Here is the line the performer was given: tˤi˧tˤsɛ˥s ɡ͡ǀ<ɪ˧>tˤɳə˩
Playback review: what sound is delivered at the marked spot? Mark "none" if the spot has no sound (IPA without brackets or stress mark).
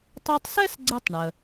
ɪ˧